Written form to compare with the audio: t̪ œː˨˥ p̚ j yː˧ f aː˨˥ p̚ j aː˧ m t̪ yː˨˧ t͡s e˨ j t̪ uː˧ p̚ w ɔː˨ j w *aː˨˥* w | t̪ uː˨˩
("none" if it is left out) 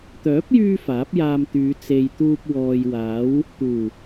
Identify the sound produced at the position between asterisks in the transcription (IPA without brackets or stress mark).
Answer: aː˨˥